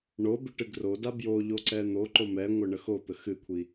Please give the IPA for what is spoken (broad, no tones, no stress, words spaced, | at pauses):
ɳo biʈɨɡroda bjo ʎoǀɛn̪oǃo mɛŋʷə ɳəxot̪ə xɨkʷʰi